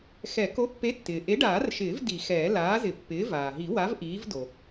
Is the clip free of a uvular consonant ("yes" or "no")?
yes